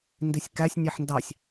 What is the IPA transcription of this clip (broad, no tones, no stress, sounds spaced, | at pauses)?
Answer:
n d i sʲ k æ sʲ nʲ e ħ n d ɑ sʲ